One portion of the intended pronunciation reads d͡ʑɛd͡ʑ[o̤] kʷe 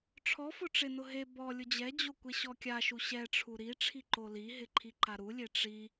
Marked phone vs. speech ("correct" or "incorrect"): incorrect